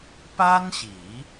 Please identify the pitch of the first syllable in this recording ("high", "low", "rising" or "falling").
high